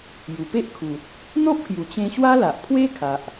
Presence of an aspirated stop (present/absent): present